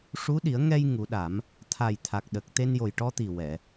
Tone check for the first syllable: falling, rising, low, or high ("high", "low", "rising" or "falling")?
rising